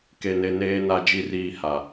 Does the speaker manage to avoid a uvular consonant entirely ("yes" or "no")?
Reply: yes